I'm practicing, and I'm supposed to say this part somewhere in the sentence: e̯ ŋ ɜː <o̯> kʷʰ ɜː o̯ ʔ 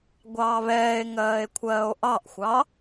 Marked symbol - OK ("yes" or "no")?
no